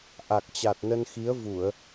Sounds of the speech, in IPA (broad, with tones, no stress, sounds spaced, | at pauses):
ʔ a˨˩ k̚ t͡ɕ a˨˩ t̚ n ə˧ n x i˨˦ ə̯ v u˧˩˨ ə̯